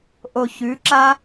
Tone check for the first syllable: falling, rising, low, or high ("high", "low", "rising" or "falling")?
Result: low